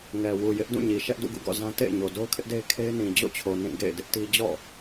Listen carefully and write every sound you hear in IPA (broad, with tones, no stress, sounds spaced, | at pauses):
ŋ ɛ˨ w u˨ j ɪ˦ ʔ d ũ˦˨ ɲ i˨ ʃ ɛ˦ ʔ d ṵ˦˨ ɡ ṵ˦˨ ɡ ɔ̰˦˨ z ã˦ t ḛ˦˨ ɪ̯ ɲ o˨ d o˦ ʊ̯ kʰ ɪ˦ ʔ d e˦ ɪ̯ kʰ e˦ ɪ̯ n ĩ˨ d͡ʑ o̰˦˨ t͡ɕʰ o˨ n ĩ˦˨ ɡ ḛ˦˨ ɪ̯ d ɪ˦ ʔ t i˦ d͡ʑ ɔ̰˦˨